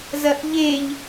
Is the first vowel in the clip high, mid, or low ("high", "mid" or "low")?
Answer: low